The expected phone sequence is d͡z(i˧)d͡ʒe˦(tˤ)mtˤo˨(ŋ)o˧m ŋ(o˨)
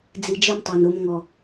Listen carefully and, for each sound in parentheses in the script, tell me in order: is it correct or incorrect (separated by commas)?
correct, incorrect, incorrect, incorrect